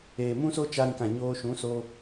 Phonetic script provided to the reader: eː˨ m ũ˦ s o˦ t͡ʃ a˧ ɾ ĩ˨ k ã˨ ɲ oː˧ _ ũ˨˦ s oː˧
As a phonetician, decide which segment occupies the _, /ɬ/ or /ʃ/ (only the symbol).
ʃ